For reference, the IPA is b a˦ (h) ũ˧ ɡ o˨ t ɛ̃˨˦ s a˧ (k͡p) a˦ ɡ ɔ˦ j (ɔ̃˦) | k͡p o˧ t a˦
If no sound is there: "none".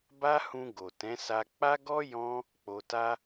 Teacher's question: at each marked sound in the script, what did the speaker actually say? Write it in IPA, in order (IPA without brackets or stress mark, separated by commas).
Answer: h, k͡p, ɔ̃˦